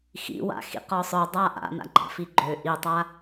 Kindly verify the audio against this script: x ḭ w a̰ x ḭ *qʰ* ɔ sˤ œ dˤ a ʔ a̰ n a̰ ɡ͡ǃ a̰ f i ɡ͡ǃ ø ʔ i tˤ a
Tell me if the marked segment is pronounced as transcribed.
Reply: no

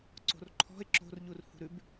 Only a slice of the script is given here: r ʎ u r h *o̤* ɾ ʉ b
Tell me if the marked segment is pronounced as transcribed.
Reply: no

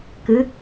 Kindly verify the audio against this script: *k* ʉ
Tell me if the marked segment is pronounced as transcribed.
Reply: yes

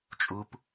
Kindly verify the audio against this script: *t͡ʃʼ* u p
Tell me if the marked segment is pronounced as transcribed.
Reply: yes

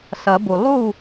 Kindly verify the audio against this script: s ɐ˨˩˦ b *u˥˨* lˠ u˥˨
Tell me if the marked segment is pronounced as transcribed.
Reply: no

